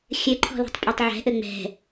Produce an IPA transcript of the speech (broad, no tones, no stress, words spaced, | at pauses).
xʲɘǃʰɔ̤lɔ̤tˤpʼɛtˤ ʕɛ̤ʔɘ ŋ͡mɛ̤